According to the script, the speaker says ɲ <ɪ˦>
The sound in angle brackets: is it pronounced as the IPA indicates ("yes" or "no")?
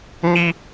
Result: no